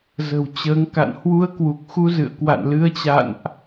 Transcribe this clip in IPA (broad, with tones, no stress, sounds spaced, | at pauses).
z ə̤˨˩ w t͡ɕ əː˨˦ ŋ k a̰˧˨ n h w u˧ ə̯ k w u˨˩ k̚ x u˧ z ɨ̰˧˨ ə̯ k w a̰˧˨ n l ɨ˨˦ ə̯ t͡ɕ a̰˧˨ n ʔ